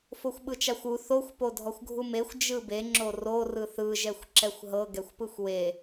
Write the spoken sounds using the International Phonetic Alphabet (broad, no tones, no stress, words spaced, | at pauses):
foxʷɓɯt͡ʃaxʷu θoxʷ podʱɔxʷɡʱumexʷ d͡ʒɯbe ŋ͡ǁoro rɯθɯ ʒɛxʷǁɛxʷɦɤ ɡɛxʷpɯxʷwe